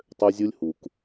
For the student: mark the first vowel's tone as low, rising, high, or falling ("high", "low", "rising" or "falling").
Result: high